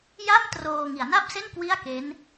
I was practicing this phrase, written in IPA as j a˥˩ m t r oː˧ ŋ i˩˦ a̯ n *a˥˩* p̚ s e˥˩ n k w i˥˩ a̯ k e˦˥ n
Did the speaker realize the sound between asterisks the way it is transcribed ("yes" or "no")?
yes